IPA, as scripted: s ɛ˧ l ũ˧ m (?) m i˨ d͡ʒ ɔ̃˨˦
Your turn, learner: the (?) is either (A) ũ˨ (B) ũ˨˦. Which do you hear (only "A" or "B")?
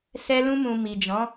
A